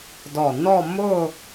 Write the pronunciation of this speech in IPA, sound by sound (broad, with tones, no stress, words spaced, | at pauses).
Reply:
dɔ˧˩ nɔ˥˧ mʊ˥˧